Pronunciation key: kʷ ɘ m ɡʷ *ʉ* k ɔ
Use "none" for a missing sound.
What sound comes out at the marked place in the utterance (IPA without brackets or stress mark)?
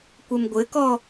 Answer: ɘ